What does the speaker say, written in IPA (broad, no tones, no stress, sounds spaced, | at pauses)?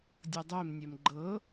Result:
dʲ ɤ dˤ e m nʲ ɛ m ɡ͡ǃ ɤ